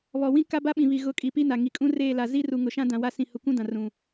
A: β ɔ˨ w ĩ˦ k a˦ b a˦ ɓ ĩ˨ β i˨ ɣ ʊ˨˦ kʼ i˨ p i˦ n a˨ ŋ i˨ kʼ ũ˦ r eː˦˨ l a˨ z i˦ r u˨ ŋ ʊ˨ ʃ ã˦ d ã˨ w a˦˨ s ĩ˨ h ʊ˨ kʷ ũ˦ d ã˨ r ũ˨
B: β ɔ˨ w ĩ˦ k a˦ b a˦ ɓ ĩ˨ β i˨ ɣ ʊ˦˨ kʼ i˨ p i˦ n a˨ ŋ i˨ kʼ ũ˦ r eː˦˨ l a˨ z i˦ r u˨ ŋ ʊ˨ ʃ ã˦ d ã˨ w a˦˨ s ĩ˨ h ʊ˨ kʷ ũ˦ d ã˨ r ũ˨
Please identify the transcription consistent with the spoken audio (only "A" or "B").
A